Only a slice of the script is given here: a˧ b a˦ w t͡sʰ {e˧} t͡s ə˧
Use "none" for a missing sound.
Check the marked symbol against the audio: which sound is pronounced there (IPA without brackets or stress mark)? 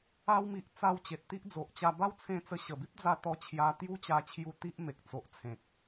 ẽ˧